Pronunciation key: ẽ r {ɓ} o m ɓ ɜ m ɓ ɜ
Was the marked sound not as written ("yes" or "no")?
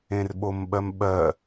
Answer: no